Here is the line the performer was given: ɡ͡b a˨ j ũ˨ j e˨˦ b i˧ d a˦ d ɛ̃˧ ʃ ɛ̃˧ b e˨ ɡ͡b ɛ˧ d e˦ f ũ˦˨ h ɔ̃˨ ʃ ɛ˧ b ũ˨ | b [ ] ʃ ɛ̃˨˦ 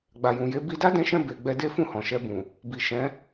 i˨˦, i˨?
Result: i˨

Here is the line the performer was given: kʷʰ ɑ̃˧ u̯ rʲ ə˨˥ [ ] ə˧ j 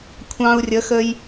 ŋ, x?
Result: x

